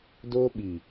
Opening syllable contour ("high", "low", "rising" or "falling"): high